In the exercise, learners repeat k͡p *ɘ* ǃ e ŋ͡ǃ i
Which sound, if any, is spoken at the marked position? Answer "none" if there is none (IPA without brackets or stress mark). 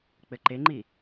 ɘ